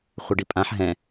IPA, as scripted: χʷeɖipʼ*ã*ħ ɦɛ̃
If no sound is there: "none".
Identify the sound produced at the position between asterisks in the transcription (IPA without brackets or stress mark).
ã